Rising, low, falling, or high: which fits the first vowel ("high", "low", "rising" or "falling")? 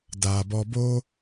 low